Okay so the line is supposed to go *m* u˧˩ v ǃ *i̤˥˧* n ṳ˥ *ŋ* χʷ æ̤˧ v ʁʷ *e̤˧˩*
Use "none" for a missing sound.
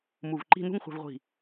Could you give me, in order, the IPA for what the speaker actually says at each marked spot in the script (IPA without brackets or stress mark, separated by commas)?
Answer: m, i̤˥˧, ŋ, i̤˧˩